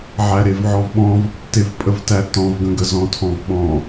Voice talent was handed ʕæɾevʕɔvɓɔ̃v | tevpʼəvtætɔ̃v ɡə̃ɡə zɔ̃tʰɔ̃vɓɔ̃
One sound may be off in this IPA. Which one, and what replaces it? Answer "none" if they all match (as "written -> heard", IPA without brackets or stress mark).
none